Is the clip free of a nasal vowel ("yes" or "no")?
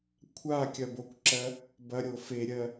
yes